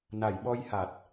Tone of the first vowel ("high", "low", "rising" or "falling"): low